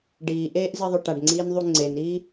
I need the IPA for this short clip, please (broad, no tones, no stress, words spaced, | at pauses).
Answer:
ɖiːʔeːʔziðˤɵ ʈaɖŋ͡ǀiːnðˤu ŋ͡ǀeniː